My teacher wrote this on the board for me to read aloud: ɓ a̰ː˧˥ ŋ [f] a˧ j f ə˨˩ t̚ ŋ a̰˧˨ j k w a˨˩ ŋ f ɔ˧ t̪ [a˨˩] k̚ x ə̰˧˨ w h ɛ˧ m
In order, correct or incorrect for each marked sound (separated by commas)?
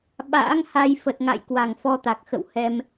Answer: incorrect, correct